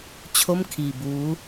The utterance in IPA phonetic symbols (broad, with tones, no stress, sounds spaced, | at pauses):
t͡ɕʰ o˥˩ m kʰ iː˧ b uː˦˥